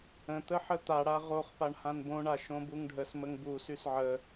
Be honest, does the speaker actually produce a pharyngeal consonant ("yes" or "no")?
yes